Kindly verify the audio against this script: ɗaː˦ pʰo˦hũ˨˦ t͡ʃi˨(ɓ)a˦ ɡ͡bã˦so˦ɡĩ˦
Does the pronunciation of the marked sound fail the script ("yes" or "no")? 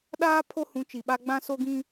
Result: no